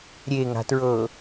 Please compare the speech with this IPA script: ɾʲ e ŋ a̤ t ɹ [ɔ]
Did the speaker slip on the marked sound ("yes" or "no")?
yes